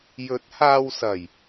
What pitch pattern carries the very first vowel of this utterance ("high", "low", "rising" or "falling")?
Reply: rising